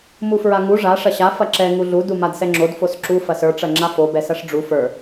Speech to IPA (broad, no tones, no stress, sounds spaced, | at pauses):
m u f ɹ a ŋ u ʐ a ʂ ɐ ɕ a f ɐ ǁ ɛ ŋ u ɮ u d u m a d s ɛ ŋ͡ǁ o d f o s ǁ u f ɐ s ə˞ ʈ͡ʂ ɐ ŋ͡ǁ a f o b ɛ s ɐ ʂ ɖ͡ʐ u f ə˞